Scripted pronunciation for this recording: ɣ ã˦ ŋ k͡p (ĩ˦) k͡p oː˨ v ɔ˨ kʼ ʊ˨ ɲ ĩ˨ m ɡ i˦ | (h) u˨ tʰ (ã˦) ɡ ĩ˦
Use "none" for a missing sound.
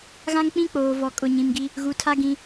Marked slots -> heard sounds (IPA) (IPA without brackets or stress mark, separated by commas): ĩ˦, ɣ, a˦